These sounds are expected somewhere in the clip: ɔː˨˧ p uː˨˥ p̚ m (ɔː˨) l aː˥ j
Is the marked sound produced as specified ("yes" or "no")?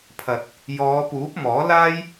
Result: no